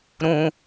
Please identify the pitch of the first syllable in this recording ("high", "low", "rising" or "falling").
high